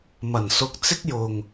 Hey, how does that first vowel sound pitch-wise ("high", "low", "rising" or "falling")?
low